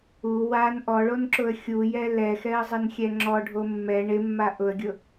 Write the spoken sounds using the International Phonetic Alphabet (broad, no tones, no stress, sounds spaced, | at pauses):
u w a n ʔ ɔ ɭ o n ǁ ʊ ə̯ xʲ u j ɛ l ɛ x ɛ ə̯ zˤ ɪ n xʲ ɛ ŋ͡ǁ ɔ ɖʱ o mː ɛ ɳ ɪ mː a ʔ ʊ ə̯ ɡʲ ʊ